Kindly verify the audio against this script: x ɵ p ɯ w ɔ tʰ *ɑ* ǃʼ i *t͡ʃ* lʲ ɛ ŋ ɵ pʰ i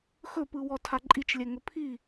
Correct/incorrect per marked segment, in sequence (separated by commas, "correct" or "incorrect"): incorrect, correct